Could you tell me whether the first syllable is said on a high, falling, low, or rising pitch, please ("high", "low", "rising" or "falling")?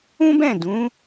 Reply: high